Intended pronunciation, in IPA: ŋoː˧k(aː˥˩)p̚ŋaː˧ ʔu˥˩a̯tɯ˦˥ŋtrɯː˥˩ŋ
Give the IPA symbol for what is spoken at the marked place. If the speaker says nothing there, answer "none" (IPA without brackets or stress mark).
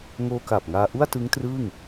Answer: aː˨˩